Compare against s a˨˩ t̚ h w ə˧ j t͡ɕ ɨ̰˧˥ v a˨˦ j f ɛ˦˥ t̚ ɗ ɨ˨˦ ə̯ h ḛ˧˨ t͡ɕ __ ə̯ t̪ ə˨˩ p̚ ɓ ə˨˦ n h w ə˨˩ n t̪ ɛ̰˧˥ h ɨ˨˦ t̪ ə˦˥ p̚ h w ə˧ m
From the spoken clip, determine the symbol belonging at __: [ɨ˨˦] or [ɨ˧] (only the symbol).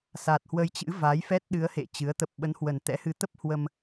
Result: ɨ˨˦